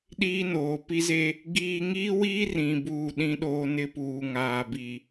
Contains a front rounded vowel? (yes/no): no